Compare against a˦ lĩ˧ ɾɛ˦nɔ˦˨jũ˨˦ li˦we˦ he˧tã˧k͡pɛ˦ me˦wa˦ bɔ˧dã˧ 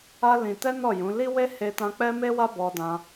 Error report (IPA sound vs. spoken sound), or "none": ɾ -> t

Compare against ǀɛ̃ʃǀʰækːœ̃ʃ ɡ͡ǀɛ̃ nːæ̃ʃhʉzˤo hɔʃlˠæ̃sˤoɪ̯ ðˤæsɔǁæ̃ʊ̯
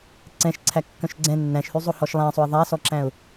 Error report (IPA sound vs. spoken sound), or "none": none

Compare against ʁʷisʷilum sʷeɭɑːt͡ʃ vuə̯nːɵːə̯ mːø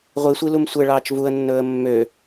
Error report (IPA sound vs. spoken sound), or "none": none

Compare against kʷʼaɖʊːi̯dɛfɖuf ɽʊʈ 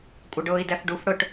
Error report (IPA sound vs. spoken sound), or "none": none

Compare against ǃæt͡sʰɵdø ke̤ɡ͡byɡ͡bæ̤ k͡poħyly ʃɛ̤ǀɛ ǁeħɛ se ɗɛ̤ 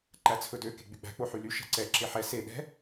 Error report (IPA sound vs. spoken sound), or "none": none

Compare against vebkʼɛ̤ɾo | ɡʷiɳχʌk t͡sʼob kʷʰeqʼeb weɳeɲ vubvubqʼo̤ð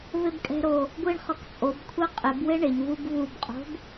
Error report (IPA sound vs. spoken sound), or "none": ð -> b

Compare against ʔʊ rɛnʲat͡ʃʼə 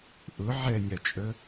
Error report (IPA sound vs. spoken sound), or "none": r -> ʕ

